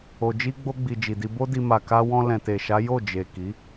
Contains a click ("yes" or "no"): no